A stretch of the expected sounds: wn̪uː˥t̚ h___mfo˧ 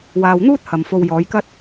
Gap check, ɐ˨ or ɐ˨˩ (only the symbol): ɐ˨